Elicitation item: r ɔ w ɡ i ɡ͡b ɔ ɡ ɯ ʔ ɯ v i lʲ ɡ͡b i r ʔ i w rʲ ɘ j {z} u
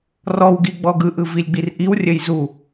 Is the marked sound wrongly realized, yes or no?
no